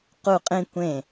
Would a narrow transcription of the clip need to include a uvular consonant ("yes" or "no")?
yes